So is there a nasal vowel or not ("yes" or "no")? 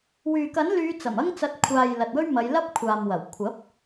no